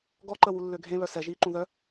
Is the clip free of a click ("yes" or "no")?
no